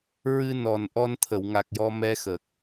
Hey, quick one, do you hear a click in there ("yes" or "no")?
no